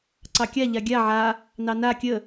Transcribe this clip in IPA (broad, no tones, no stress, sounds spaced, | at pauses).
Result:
ǀ ɑ kʲ a ʎ a ɡʲ a ʕ a | n ɑ n a kʲ ə